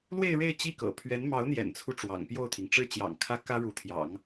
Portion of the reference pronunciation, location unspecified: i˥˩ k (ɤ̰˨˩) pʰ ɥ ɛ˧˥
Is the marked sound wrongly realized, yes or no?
no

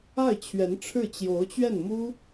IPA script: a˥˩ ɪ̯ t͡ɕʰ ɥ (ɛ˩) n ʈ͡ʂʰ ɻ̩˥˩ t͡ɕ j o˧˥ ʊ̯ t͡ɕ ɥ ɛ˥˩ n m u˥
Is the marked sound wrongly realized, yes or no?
yes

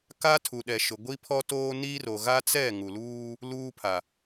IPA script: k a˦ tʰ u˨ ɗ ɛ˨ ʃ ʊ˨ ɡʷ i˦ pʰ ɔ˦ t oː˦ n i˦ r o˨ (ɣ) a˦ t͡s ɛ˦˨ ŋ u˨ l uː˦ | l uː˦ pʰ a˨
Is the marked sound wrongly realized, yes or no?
no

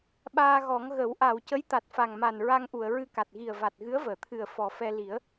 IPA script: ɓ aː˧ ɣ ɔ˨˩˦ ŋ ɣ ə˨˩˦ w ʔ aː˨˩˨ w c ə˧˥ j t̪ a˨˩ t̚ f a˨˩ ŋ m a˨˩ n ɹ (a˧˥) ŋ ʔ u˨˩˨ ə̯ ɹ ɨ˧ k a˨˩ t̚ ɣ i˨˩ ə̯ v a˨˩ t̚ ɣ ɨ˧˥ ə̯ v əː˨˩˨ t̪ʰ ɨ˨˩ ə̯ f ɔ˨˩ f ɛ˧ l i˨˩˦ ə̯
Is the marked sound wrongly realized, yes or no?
yes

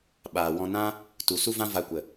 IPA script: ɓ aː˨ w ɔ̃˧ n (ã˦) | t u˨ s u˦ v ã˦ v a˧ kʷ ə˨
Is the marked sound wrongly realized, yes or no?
no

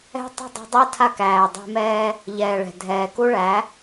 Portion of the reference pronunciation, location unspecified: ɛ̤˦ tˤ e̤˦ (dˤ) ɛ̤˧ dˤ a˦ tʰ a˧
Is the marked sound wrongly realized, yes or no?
no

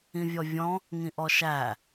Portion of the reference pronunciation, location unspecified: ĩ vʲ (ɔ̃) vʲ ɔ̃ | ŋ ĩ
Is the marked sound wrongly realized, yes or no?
yes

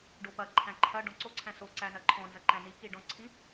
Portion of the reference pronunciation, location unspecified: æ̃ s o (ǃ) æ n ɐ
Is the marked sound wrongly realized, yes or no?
yes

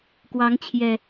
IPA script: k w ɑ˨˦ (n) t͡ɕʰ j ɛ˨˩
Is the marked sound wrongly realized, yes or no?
yes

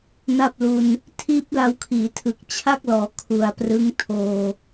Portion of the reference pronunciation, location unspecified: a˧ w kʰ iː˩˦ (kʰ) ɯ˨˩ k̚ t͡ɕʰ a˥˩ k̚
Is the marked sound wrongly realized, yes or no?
yes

